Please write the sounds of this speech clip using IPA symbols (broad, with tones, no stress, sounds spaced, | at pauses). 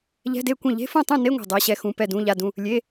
ʎ ɛ̤˧˥˧ d e˥˩ kʷ ẽ˥˩ ʎ e̤˧˥˧ f ũ˥˩ tˤ ũ˥˩ n e˧˥˧ ŋʷ ɛ̤˥˩ dˤ ɛ˧˥˧ ɕ ɛ˥˩ x ũ˧˥˧ p ɛ˥˩ d ũ˧˥˧ ʎ a˧˥˧ d ũ˧˥˧ | lʲ e˧˥˧